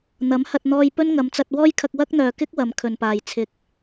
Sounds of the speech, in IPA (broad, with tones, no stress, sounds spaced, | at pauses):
n̪ ɐ˨˥ m h ɐ˧ t̚ n̪ ɔː˧ j p ɵ˥ n ŋ ɐ˨˧ m t͡s ɐ˧ t̚ w ɔː˥ j kʰ ɐ˧ k̚ w ɐ˥ k̚ n̪ œː˨ k ɪ˥ k̚ w ɐ˨˧ m kʰ ɵ˨ n p aː˨ j t͡sʰ ɪ˨ k̚